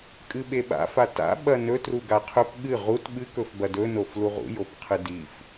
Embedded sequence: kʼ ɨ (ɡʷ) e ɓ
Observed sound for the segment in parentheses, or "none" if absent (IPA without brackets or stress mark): ɓ